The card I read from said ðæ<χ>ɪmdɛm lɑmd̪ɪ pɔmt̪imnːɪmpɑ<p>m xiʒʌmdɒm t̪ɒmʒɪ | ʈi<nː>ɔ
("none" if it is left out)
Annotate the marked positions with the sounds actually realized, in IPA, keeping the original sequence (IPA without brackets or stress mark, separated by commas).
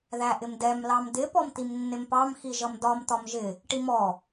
ʔ, none, m